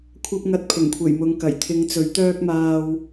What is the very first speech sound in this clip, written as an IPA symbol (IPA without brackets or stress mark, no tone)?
kʷʰ